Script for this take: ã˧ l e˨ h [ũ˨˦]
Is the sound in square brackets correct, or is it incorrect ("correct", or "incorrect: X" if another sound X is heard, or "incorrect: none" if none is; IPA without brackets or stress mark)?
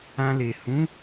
correct